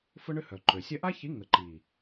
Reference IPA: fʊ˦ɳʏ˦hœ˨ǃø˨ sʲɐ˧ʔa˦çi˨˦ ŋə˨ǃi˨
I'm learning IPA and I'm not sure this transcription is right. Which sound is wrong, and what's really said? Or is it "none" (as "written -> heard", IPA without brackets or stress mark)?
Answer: none